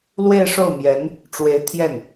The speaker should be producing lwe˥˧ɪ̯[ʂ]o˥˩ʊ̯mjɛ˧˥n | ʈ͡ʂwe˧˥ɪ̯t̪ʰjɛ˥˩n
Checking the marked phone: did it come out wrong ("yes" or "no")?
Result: no